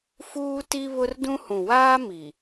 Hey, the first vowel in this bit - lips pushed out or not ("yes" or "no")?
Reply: yes